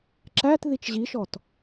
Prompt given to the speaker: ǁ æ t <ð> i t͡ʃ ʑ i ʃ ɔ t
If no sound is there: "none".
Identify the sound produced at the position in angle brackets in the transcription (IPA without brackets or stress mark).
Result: ð